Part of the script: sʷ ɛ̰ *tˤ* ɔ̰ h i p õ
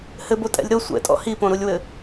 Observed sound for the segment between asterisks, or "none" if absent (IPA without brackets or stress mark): tʼ